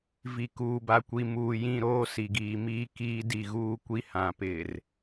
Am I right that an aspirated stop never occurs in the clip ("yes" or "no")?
yes